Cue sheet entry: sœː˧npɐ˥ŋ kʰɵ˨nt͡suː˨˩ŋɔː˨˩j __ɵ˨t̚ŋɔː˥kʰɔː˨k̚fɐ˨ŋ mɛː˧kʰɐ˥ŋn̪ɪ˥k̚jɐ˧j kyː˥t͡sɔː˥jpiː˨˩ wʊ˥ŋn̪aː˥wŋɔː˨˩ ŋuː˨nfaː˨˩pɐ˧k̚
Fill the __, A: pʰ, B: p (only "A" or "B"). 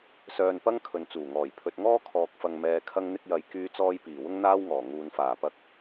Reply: A